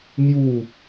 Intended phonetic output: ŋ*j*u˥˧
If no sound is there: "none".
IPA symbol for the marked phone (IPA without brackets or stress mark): j